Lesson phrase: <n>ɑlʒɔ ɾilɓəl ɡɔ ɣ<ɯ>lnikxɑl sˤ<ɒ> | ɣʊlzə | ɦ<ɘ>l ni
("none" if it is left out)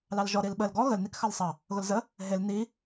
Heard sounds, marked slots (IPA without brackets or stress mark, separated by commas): l, ə, ɑ, e